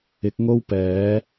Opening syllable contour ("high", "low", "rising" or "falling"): rising